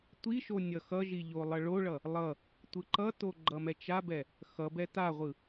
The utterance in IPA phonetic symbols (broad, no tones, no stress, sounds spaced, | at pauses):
tʷ i ʃ o nʲ ʌ x ʌ ʒ i ʎ o lˠ ʌ ɭ o ɭ ʌ | lˠ ʌ | tʷ ɯ ǃ ʌ t o ɡ͡ǃ ʌ m ɛ t͡ʃ a b ɛ | x ʌ b ɛ t a ʁʷ ɯ